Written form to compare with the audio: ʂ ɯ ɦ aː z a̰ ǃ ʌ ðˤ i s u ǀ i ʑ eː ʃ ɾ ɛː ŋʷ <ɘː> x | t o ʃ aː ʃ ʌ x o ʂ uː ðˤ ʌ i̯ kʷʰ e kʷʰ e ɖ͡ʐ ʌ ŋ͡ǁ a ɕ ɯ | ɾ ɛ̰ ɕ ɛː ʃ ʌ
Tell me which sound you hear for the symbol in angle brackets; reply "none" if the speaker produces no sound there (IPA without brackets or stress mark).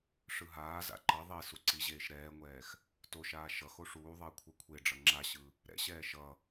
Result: ɛː